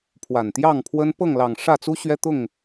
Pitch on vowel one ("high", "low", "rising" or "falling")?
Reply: low